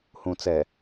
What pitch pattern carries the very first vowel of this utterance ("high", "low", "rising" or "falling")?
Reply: low